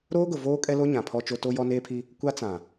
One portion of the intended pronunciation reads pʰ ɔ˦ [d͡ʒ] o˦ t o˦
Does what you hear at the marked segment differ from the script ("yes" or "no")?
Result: yes